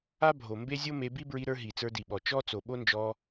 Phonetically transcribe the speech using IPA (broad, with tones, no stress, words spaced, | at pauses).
a˦ bʱo˨mbe˦zʲo˦me˧ bi˦bɹi˧ ɾə˞˧ ɦi˨t͡sə˞˧di˨ɓɔ˨ t͡ʃɔ˦ t͡so˨ɓo˦nd͡ʒɔ˧